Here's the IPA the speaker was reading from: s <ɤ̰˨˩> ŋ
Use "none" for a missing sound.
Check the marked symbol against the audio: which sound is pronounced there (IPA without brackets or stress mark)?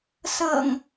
ɤ̰˨˩